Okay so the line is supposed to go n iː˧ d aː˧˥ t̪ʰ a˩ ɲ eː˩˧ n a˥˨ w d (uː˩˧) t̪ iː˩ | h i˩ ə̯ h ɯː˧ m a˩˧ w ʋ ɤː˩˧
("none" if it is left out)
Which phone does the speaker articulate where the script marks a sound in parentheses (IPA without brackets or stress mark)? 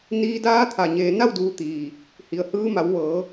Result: uː˩˧